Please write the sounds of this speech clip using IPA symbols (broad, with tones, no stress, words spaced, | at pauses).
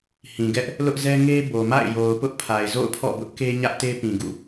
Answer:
hĩ˨ɡɛ˦ʔ | lʊ˦ʔzɛ˦ ŋe˦bo˨ma̰˦˨ɪ̯ jo˨ʊ̯pʊ˦ʔpʰa˨ɪ̯ zo̰˦˨ʊ̯pʰɔ̰˦˨bʊ˦ʔke˦ ɲä˦ʔte˦pĩ˨ɡṵ˦˨